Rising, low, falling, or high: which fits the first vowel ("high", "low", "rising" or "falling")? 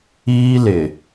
high